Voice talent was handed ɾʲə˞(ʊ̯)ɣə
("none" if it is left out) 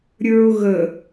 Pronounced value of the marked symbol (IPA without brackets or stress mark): ʊ̯